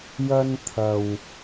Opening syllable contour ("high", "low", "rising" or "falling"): high